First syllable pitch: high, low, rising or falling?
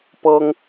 high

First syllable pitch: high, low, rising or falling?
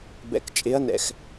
low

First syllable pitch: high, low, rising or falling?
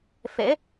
rising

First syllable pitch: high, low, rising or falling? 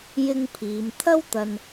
high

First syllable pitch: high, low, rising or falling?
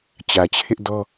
low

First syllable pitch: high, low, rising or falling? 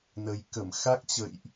low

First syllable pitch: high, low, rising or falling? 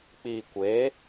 low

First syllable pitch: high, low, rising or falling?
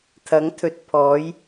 rising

